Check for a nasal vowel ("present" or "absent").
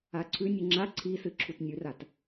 absent